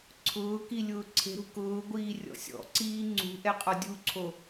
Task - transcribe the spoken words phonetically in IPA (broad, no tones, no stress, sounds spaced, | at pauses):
ǀʰ ʊː k i lʲ ʊː ǀʰ e̤ ɾ ṳ k ʊː ɡʷ iː rʲ ɔ̰ sʲ ɔ̰ ǀ iː ŋ͡ǀ ṳ ʔ ɛ qʼ ɔ dʲ u ǀʰ o